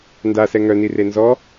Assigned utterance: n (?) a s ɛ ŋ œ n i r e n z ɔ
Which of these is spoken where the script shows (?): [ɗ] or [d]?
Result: d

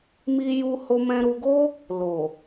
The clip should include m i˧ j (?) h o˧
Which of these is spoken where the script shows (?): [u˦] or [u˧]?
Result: u˧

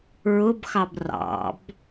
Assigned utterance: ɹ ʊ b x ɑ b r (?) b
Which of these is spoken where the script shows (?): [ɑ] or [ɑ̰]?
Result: ɑ̰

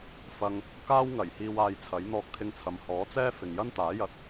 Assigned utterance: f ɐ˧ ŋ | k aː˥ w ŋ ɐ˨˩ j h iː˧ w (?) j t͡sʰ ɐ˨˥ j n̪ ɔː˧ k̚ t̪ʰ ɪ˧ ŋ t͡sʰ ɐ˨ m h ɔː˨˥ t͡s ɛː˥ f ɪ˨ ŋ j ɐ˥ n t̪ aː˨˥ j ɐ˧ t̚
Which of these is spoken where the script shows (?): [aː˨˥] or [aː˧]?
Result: aː˧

